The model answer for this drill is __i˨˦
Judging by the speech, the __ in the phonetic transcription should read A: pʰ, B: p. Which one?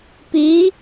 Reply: B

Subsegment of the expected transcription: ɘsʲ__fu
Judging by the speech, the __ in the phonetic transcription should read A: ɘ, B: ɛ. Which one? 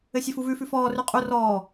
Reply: A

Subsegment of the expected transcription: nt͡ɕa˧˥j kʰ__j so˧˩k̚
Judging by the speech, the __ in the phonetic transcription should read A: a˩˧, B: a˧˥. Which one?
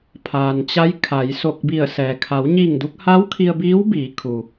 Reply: A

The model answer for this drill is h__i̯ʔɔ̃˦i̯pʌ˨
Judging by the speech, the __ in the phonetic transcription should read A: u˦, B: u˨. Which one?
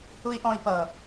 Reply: A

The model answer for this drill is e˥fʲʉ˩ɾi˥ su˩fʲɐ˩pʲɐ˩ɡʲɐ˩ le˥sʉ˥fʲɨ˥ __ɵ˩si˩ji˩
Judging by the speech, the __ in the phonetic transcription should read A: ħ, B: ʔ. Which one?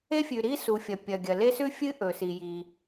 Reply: B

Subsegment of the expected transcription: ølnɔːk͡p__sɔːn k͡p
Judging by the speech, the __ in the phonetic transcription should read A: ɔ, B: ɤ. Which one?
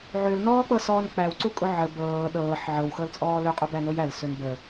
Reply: B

